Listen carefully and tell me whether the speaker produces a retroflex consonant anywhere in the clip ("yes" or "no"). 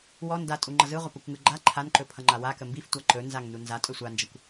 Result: no